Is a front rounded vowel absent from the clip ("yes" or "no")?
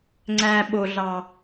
yes